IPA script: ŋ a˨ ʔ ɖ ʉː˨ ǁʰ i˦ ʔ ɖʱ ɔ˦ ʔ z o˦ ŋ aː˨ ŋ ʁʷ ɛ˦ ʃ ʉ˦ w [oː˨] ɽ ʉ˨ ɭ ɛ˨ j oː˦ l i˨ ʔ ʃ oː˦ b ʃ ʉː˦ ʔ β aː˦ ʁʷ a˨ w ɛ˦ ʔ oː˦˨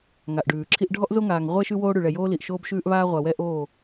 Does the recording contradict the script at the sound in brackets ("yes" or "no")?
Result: yes